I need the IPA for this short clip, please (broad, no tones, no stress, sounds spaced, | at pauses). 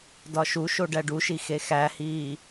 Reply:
d ɒ ʃ u ʃ o ɖ æ ɖ u ʃ i x e x æ h iː